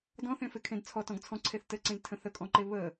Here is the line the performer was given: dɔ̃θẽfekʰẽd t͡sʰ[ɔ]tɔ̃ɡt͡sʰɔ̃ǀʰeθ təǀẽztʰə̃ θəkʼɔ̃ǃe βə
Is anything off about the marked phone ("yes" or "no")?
no